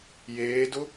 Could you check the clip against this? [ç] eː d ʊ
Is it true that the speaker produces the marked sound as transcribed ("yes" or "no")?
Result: no